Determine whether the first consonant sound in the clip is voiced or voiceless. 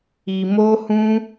voiced